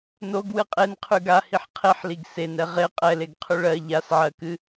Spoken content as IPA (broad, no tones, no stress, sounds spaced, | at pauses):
n o ɡ w ɨ qʼ e n qʰ ʉ ɡ a h i ħ qʰ e ħ l i ɡ s e n ɛ ʁ e qʼ ɛ l e ɡ qʰ ʉ ɭ ɜ ʎ a s ʕ ɜ k ɨ